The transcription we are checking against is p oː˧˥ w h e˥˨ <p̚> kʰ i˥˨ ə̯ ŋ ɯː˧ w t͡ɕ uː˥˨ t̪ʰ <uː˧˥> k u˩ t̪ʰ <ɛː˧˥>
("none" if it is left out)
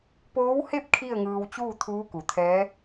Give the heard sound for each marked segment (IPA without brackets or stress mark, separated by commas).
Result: p̚, uː˧˥, ɛː˧˥